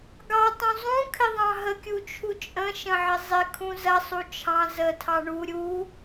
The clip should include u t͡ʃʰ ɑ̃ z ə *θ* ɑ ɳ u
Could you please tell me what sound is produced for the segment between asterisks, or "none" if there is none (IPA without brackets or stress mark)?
tʰ